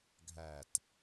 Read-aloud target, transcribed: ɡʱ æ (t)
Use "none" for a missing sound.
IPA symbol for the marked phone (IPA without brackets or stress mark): t